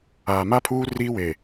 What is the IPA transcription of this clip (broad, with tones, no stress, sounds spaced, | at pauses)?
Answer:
aː˨ m a˦ pʰ uː˦ r iː˦ w eː˨